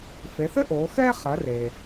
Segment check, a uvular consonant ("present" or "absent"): present